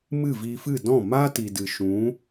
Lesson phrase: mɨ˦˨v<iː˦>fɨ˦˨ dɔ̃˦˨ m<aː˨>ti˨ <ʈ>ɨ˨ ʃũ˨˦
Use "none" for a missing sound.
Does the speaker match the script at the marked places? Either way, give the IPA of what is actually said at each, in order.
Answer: iː˧, aː˦, d

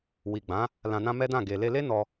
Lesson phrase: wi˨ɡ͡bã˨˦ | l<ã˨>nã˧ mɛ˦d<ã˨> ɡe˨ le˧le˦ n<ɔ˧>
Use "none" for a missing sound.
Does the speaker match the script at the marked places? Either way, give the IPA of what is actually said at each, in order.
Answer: ã˨, ã˦˨, ɔ˧

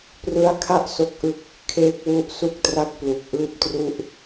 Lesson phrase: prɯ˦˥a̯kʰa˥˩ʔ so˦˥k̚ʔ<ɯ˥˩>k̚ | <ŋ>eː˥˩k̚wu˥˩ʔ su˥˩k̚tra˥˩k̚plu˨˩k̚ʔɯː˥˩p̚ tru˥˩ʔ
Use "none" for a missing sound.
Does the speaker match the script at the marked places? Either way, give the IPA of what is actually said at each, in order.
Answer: ɯ˥˩, kʰ

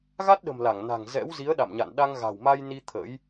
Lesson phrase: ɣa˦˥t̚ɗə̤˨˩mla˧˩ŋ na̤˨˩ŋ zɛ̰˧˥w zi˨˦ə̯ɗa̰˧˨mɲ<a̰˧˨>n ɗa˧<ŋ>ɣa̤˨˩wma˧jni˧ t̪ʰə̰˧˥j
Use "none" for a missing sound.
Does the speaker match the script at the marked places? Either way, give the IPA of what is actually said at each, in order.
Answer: a̰˧˨, ŋ

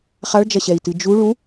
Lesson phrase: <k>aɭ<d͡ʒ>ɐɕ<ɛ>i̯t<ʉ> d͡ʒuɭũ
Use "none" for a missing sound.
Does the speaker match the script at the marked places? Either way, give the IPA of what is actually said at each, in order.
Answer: χ, d͡ʒ, ɛ, ɨ

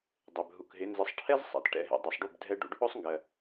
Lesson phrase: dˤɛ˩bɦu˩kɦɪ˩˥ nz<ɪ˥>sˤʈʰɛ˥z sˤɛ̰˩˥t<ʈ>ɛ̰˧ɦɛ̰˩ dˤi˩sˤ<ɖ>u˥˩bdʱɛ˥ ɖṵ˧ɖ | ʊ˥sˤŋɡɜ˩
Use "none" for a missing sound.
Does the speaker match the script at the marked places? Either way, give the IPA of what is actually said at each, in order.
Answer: ɪ˩˥, ʈ, ɖ

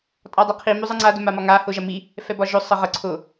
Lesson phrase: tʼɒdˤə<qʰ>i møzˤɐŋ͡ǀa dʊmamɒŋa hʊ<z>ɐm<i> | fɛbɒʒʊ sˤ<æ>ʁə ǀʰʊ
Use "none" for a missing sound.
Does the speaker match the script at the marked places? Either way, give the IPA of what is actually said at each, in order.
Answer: qʰ, ʒ, i, ə

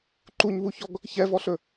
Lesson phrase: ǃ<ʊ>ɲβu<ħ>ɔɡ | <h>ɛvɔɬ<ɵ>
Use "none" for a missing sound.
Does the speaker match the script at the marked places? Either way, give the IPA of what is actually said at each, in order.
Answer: u, ç, ç, ɵ

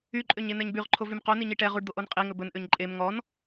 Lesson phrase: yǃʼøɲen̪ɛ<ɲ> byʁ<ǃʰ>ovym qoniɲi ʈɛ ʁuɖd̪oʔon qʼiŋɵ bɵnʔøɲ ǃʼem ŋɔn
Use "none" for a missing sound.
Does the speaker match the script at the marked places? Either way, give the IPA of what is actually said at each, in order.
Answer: ɲ, ǃʰ

